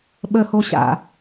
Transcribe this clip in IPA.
ɓəhoɕa̰

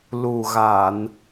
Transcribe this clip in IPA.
lu˨˩ɣa˨˩˨n

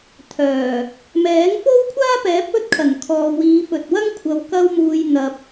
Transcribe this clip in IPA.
t̪ʰœː˨˩ | mɛː˨˥ŋfo˥wkʷʰaː˥pɛː˨˥p̚ ɵ˥t̚ kʰɐ˨˩nkʰɔː˨ wiː˨˧fɵ˨t̚wɐ˥ŋ kʷʰɐ˨w kɐ˧wmuː˨j n̪ɐ˨p̚

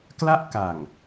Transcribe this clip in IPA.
kla˥˩ʔka˨˩ŋ

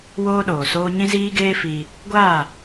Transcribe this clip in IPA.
woː˦ɗoː˨soː˦ ɲĩ˦ziː˦ɡeː˦ fiː˧ | ɡʷaː˦˨

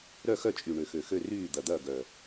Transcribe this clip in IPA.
ɾœ˥˩xœ˥˩t͡ʃʼy˨˩ ɳø˨˩xø˨˩xø˥˩ ryː˥˩ d̪ɐ˨˩d̪ɐː˥˩ ɡœ˨˩

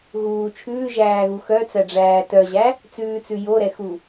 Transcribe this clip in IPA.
ɣuː t͡ʃʰʉːʒæːɣu xœt͡sæɖ͡ʐæː tœʑæ | t͡sʉːt͡sʉ joɾɛxu

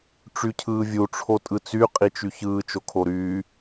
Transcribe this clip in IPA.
ʈ͡ʂycʰɯːvʲu ʈ͡ʂʰotʼɯt͡sy qʼit͡ʃyçɯː t͡ʃokʰoɾyː

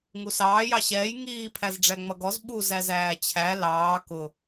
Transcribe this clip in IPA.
ŋusɑː jɑɕɛːj ŋiː pʰæzɖ͡ʐæŋ͡mʌɡɔz ɓu zæzæːt͡ɕʰæ lɑː kʊ

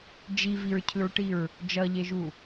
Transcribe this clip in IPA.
d͡ʒiviɹcʰɯɹʈiɹ | d͡ʒʌʎeʒu

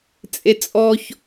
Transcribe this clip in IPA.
t͡sʼet͡sʼɔç

